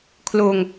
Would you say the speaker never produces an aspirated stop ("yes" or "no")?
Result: no